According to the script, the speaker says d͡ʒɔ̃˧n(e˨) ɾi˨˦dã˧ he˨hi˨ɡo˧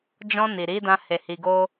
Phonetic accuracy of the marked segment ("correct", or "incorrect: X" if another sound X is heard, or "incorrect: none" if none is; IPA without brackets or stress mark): incorrect: i˨